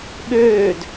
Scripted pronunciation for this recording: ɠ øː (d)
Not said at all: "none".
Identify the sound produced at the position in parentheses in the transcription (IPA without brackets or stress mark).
d